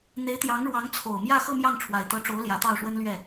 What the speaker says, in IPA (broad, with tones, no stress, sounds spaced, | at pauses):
n̪ e˧˥ ɪ̯ t̪ j ɑ˧˥ ŋ ɻ w ɑ˧˥ ŋ t͡sʰ o˨˩ ʊ̯ m j ä˥˧ x ɤ˥˧ m j ɑ˥˩ ŋ ʈ͡ʂʰ w a˨˩ ɪ̯ t̪ ɤ˧˥ ʈ͡ʂ o˧˥ ʊ̯ l j ä˧˥ t̪ ɑ˥˩ ʊ̯ ʂ w ə˥ n l ɥ ɛ˥˩